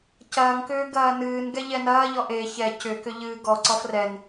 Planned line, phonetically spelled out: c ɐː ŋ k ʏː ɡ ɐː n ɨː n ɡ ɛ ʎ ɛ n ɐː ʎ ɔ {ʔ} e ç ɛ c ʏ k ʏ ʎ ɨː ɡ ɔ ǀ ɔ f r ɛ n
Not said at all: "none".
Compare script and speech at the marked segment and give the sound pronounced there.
ʔ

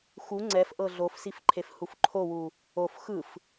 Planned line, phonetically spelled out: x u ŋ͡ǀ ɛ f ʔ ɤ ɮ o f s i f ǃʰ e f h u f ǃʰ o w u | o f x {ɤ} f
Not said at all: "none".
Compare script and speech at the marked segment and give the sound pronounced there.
ɯ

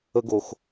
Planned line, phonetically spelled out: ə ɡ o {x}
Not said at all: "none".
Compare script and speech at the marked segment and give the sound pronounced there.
x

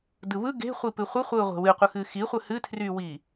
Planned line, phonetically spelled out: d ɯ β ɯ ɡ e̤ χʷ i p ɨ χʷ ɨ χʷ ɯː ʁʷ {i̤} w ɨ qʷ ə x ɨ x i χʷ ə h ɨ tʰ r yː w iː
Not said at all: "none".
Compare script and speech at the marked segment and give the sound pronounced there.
e̤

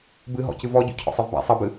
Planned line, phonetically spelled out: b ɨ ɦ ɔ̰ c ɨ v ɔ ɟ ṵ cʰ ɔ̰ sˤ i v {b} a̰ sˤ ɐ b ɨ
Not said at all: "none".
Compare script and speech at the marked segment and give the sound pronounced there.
b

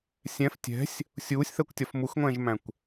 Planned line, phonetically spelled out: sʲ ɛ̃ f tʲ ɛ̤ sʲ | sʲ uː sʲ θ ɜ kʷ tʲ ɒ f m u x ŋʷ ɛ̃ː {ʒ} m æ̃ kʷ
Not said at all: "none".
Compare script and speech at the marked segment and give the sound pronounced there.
ʒ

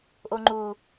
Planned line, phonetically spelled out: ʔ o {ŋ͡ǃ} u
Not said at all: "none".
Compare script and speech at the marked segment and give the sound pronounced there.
ŋ͡ǃ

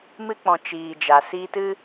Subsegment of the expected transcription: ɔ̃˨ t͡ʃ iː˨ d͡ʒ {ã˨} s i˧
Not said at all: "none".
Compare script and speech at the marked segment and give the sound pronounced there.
a˨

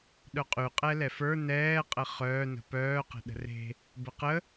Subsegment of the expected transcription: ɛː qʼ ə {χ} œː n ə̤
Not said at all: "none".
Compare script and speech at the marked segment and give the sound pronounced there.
χ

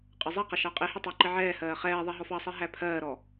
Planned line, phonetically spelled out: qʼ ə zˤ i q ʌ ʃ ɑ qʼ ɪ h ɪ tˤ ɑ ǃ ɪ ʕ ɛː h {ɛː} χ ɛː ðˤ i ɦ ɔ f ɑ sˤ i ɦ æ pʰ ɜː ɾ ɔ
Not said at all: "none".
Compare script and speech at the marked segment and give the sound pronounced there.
ɜː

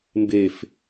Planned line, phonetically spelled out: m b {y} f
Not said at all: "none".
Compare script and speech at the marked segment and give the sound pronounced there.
e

